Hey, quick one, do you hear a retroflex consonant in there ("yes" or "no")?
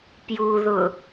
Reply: no